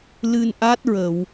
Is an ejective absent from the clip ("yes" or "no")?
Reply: yes